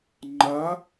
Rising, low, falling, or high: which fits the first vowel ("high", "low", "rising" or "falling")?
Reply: rising